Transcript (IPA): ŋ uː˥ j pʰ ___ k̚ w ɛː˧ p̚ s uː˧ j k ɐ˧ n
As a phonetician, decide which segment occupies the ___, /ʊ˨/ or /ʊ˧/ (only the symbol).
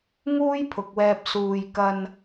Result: ʊ˨